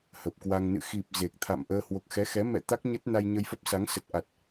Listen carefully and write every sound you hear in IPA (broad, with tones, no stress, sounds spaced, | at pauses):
h ə˨˩ p̚ k w a˧ ŋ n ɨ̰˧˨ x i˨˩ p̚ z e˨˩ k̚ t̪ʰ a̰˧˨ m ʔ əː˧ h w o˨˩ k̚ x ɛ˨˦ x ɛ˨˦ m ɛ̰˧˨ t̪ a˦˥ k̚ ɲ ə˦˥ t̚ n a˧ j ɲ ə˧ j f ə˦˥ p̚ s a˨˦ ŋ s ə˨˩ t̚ ʔ a˨˩ t̚